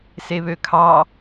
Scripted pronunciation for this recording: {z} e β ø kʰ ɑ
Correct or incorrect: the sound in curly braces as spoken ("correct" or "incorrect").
incorrect